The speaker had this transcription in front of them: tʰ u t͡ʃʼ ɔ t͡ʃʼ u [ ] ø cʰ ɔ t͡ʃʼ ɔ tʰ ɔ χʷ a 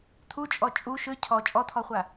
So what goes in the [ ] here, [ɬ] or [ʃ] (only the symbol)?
ʃ